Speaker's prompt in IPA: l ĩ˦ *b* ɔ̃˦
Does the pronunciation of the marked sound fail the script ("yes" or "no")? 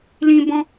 no